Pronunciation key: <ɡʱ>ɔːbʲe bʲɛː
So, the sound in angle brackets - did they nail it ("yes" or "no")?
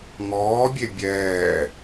no